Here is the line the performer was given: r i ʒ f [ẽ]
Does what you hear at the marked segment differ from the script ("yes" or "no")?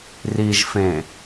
no